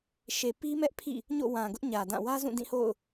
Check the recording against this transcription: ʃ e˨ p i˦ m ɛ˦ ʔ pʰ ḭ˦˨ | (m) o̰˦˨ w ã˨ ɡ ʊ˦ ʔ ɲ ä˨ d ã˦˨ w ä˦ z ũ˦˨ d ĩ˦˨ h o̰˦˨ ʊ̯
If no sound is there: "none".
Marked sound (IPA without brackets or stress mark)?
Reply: ɲ